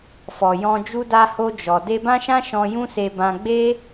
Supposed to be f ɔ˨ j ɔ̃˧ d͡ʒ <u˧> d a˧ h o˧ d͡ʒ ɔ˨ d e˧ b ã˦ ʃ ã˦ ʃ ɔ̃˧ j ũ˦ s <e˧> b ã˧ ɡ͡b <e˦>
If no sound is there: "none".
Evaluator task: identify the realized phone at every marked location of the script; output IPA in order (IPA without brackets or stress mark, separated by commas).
u˧, e˧, e˦